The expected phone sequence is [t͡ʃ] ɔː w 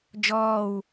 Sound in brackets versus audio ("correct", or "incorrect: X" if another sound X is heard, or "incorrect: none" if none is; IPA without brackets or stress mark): incorrect: d͡ʒ